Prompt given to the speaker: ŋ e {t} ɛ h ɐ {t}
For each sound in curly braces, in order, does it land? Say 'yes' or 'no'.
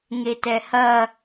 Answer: yes, no

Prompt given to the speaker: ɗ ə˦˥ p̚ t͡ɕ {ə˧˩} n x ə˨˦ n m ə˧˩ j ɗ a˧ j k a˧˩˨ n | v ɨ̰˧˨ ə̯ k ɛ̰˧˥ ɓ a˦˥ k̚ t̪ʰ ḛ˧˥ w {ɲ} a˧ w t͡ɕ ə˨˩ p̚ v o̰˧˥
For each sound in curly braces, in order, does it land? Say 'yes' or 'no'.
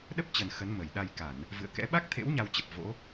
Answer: no, yes

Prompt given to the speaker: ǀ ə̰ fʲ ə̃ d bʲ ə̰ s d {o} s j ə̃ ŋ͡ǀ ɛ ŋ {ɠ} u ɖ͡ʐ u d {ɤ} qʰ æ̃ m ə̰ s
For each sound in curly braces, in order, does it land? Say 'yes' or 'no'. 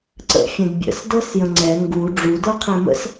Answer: no, no, yes

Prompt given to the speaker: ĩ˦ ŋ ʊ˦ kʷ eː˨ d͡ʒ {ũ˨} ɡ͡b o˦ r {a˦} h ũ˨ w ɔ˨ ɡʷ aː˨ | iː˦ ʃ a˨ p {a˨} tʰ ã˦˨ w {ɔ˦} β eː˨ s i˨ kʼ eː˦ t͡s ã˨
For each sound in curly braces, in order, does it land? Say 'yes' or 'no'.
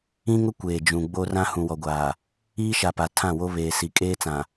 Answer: yes, no, yes, no

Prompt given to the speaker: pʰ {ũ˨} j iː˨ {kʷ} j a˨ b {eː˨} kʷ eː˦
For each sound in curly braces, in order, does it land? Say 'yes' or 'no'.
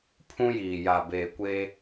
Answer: no, no, yes

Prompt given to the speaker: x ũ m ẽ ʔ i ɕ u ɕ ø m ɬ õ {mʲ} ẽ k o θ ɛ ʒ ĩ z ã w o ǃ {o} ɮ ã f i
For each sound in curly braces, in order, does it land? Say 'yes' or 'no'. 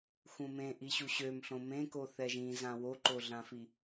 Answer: no, yes

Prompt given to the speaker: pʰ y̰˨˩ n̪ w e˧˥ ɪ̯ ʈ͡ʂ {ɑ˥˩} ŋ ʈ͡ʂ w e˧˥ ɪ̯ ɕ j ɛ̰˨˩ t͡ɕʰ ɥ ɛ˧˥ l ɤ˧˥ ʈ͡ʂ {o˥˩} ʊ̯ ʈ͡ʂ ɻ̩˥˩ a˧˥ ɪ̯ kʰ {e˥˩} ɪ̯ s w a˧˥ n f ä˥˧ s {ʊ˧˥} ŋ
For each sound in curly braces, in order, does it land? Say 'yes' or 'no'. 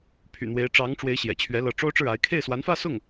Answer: no, no, yes, no

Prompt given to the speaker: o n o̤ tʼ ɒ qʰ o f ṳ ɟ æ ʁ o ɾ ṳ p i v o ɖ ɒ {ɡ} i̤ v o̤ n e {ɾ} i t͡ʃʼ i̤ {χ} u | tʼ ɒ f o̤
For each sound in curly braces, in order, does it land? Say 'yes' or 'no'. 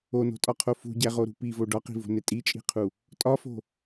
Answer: no, no, no

